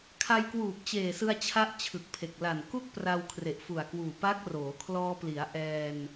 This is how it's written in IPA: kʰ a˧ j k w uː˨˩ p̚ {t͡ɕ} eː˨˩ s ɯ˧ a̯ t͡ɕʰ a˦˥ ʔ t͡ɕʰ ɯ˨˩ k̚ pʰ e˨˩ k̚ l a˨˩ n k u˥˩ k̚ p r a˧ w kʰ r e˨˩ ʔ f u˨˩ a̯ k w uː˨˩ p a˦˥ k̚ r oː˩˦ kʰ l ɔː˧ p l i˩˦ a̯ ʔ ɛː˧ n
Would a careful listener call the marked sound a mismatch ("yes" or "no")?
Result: no